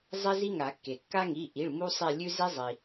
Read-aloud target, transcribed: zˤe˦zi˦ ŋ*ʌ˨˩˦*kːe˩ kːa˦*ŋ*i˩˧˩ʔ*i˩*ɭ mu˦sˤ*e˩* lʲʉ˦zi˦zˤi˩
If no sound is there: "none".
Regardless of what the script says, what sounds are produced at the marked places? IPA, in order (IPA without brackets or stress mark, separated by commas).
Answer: a˨˩˦, ŋ, i˩˧˩, e˦˨